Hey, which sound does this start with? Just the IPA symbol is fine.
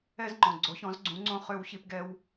ɛ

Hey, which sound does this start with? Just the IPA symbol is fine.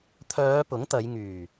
t̪ʰ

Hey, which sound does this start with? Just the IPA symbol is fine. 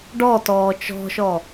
ɖ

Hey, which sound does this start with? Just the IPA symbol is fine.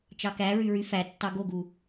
t͡ʃ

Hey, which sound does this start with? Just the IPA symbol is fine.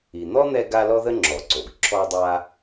i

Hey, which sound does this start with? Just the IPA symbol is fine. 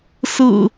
s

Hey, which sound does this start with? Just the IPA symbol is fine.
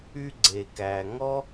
y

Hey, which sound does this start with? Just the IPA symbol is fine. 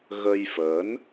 ɣ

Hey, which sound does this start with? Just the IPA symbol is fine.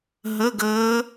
ɦ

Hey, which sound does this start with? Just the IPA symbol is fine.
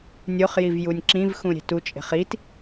nʲ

